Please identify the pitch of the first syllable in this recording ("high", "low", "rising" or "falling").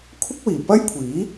high